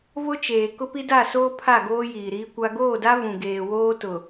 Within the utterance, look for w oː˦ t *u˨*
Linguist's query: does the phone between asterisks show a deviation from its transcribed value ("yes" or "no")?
yes